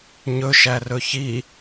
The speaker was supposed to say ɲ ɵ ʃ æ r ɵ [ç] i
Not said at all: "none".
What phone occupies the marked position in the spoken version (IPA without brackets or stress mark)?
ç